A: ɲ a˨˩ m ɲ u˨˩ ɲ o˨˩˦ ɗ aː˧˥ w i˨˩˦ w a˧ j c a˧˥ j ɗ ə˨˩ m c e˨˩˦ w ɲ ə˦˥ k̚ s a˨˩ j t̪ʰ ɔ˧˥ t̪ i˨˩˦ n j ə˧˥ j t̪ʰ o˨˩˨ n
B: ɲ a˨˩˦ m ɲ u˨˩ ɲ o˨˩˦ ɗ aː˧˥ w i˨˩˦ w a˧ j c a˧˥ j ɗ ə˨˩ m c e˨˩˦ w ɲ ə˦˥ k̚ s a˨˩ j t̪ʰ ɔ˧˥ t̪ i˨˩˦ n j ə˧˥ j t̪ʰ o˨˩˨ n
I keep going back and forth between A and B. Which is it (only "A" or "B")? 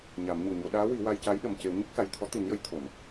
B